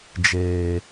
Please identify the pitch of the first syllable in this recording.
low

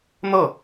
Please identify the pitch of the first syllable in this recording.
falling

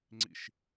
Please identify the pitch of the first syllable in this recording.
falling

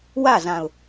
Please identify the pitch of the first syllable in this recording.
falling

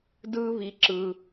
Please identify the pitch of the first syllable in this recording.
high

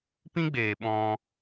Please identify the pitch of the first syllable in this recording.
high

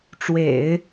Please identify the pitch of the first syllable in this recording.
low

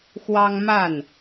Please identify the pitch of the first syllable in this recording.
high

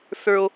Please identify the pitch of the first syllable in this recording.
high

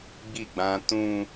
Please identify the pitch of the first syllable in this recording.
falling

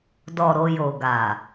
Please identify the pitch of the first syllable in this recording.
low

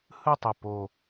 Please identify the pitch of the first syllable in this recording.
falling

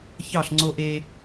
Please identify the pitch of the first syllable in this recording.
falling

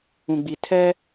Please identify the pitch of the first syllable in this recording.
low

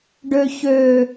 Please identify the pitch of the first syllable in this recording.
low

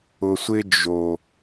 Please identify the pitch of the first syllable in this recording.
low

